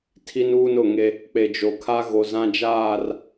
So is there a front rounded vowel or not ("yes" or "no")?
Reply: no